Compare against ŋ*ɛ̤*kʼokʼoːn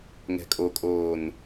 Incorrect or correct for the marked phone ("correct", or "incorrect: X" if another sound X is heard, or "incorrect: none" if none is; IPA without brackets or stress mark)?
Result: correct